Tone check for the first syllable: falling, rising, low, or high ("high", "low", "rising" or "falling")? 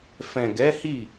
low